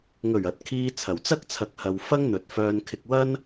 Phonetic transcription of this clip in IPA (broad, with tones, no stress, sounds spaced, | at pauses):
ŋ ɵ˨˩ ɥ ɐ˨ t̚ kʰ iː˧ t͡sʰ ɐ˨˩ w t͡s ɐ˥ k̚ t͡sʰ ɐ˨˥ k̚ h ɐ˨ w f ɐ˥ ŋ n̪ ɵ˨ t̚ f œː˧ n kʰ ɪ˧ k̚ w ɐ˥ n